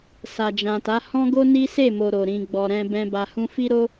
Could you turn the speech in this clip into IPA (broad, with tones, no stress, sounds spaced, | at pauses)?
s a˨ d͡ʒ ã˨ t a˨˦ h ɔ̃˦ ɡ o˦ n i˦ s e˦˨ m o˨ ɾ o˨ ɾ ĩ˨ ɡ͡b ɔ˨ ɾ ɛ̃˧ b ɛ̃˧ b a˨ h ũ˧ f i˦ ɾ o˦